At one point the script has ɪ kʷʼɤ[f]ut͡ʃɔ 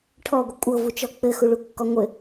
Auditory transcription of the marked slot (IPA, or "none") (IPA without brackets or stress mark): v